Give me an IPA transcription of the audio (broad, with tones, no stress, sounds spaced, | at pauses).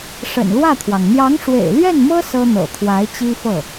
ʂ ə̰˨˩ n l w ä˥˩ t̪ʰ w ɑ˩ ŋ n̪ j ɑ˧˥ ŋ ʂ w ḛ˨˩ ɪ̯ l ɥ ɛ˥˩ n m ɤ˥ s ɤ˥ n̪ ɤ̰˨˩ t̪ʰ w a˧˥ ɪ̯ t͡ɕ i˥ f ɤ˥˩